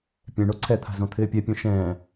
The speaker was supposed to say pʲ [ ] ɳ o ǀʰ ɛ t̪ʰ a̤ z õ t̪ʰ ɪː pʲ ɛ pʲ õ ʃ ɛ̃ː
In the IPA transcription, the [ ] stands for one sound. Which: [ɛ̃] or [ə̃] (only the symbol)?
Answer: ɛ̃